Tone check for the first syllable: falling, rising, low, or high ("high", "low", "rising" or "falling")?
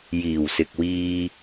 low